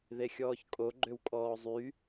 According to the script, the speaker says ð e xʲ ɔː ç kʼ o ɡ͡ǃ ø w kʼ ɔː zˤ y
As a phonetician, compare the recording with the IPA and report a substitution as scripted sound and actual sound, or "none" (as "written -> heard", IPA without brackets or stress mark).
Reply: none